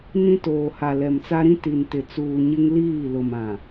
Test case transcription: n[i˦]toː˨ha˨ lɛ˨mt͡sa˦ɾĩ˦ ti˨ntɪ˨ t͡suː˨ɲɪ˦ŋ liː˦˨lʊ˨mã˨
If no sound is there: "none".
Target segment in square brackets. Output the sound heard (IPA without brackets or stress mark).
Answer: ĩ˦